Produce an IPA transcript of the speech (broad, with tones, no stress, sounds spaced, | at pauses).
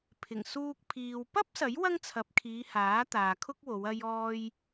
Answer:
pʰ ɪ˨˩ ŋ s uː˧ k̚ pʰ iː˨ w p ɐ˥ p̚ s ɐ˨˥ j w ɐ˥ ŋ t͡sʰ ɐ˨˥ p̚ kʰ iː˨˧ h aː˨˥ t̪ aː˨ kʰ ʊ˥ k̚ w o˨˧ w ɐ˧ j ɔː˧ j